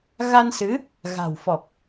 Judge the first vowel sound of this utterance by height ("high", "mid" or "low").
low